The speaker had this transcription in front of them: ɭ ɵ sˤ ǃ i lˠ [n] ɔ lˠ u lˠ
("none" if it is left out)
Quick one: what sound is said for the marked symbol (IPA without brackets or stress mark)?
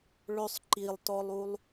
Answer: t